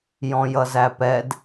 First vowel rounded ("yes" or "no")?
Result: yes